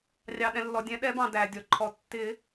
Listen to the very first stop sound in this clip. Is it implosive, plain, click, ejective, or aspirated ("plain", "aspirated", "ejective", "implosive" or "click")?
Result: implosive